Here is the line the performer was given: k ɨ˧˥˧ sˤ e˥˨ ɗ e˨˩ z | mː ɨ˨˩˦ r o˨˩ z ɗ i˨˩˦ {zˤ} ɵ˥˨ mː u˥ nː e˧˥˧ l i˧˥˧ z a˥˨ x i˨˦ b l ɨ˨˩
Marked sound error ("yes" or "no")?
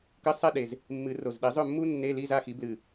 no